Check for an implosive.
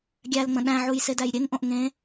present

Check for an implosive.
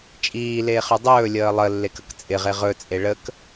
absent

